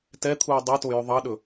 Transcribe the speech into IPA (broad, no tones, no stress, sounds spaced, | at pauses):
t ɛ t̪ʰ uː dˤ ɑ t o j œ ðˤ ɑ ɗ ɵ